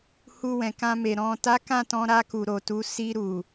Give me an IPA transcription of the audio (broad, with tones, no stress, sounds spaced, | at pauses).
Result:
h u˧ w ɛ̃˨ k ã˧ m e˨ ɾ ɔ̃˨ t a˨˦ k ã˦˨ t ɔ̃˧ ɾ a˧ k u˨ ɾ o˨ t u˨˦ s i˧ ɾ u˨